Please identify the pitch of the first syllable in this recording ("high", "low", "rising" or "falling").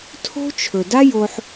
high